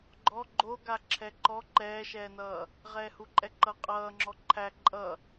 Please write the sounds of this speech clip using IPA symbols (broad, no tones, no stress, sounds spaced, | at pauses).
ɡ͡ǃ ɔ ɡ͡ǃ o ɡ a ǁʰ ɛ ǃ ɔ ǃ ɛː ʃ ɛː n ʌː | ʁ ɛː h u ǃʼ ɛ ǃ ʌ qʼ ʌː ŋ͡ǁ ɔ ǃʰ æ ǃʼ ʌ